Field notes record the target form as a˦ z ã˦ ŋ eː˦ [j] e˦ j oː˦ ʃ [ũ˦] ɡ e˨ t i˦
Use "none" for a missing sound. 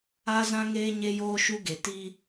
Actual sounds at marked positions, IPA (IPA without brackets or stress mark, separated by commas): ɲ, u˦